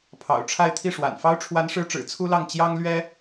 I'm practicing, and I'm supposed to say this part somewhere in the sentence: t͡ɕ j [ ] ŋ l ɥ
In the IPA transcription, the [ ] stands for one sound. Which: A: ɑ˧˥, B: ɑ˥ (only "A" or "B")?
B